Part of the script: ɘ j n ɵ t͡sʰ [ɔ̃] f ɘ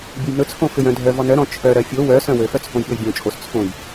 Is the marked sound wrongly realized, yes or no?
yes